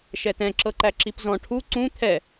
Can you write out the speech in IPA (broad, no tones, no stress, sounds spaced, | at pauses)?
ʃ ɛ t ɛ̃ ǁ ɤ ǃ æ ǁ i p z ɔ̃ ʈʰ u ǀ ũ t̪ʰ ɛ